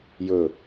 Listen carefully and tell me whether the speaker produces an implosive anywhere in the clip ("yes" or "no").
no